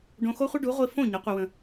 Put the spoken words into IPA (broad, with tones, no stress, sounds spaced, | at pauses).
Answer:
ɖ õ˧ x o˦ χʷ ə˦ ɖ u˨˦ ʁʷ i˧ f õ˦˨ ɲ ɯ˨˦ qʷ i˧ w ə̃˧